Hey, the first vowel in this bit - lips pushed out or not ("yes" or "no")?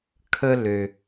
no